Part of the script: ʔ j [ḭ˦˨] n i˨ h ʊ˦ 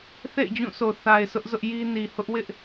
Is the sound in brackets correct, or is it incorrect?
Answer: incorrect